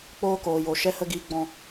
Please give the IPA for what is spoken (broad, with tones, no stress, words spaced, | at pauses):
k͡poː˦koː˨jo˨ ʃɛ˦hə˦ɡiː˧ ɡ͡bɔ̃˧